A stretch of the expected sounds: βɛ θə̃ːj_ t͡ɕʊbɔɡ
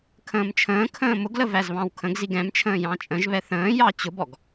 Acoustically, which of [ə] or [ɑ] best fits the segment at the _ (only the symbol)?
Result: ɑ